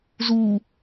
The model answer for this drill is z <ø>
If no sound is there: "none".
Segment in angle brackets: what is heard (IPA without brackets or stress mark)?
u